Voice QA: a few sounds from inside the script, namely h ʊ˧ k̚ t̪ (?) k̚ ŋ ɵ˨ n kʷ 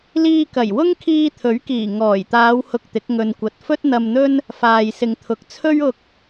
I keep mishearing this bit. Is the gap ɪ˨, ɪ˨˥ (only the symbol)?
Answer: ɪ˨˥